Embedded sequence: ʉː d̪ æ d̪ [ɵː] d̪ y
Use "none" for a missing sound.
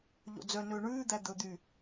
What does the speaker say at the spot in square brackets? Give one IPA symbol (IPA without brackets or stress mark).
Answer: ɵ